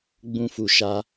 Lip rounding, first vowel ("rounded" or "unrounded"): rounded